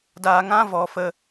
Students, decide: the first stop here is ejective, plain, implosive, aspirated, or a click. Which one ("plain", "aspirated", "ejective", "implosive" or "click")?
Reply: plain